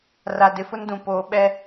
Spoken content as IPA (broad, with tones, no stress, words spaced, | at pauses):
ra˨ dɪ˨fʊ˦ndũ˨ poː˨ ɓɛ˦